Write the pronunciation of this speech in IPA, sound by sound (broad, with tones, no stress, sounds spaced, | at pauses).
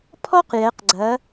pʰ ɔ˥ q j ɛ˩˧ q ɡ͡ǀ ɐ˩˧